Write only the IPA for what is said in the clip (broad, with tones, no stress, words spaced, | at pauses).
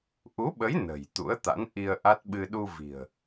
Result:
ʔu˨˦ɓə˨˦j nə̤˨˩jt̪ṵ˧˥ə̯t̪a̰˧˥nʔi˧ə̯ ʔa˦˥t̚ɓɨ˧ ɗu˧vi̤˨˩ə̯